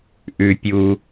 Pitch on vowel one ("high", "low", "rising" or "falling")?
high